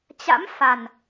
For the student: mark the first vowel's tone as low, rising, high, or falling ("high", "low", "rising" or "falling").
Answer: rising